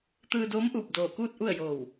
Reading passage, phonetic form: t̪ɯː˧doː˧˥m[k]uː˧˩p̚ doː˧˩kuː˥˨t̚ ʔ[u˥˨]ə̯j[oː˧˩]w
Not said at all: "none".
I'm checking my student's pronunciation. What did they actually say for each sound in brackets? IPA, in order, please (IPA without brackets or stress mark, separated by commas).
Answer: ʔ, u˥˨, oː˧˩